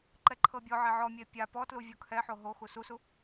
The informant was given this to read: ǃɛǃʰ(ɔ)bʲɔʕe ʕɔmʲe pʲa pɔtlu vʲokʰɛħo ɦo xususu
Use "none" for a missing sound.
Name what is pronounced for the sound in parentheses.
ɤ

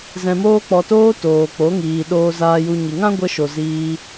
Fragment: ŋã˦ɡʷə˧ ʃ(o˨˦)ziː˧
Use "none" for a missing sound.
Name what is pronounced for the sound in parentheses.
o˨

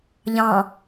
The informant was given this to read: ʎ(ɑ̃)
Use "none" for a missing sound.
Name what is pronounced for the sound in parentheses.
ɑ̃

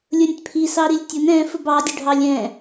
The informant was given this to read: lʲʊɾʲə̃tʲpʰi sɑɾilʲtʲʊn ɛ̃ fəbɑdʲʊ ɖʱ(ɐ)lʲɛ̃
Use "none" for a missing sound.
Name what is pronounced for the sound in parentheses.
ɑ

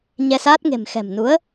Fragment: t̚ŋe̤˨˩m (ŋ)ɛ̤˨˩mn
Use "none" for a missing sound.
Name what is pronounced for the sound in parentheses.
x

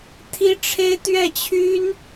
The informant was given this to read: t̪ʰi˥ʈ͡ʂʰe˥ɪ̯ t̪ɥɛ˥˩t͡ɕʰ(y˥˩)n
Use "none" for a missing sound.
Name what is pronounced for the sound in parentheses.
y˥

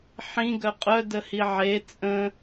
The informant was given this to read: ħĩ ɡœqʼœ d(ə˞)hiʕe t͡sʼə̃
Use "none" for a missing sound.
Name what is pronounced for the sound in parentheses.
ə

